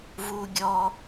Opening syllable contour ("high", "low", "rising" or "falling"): low